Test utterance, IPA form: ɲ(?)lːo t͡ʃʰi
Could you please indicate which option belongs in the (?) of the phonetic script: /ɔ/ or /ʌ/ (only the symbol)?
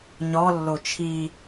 ɔ